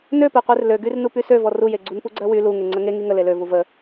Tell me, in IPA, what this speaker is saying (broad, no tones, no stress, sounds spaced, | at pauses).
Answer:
n ø p e qʷ e r l ø ɡ y r n u p y s ø v ɔ r u j e ɡ͡ǀ u n p u ɡ͡ǀ ɜ w y l u ŋ e ŋ͡ǀ ə ŋ e ŋ i ŋ ə l e l ø v u v ə